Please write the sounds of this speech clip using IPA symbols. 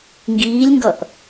ŋɡiːlʲŋɡʌʔ

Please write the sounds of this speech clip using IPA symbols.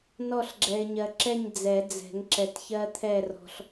nɔ˦˨ɬɡ͡ǁɛ˨ɪ̯ɲɜ˨ ǁɛ˦˨ɲ d͡zɛ˨˩˦d͡zɛ̤˨˩˦ŋ ǁɛ˨tçɜ˦t̪ʰɛ˦˨ rɔ̤˨ɬ

